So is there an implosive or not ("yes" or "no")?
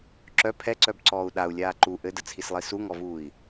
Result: yes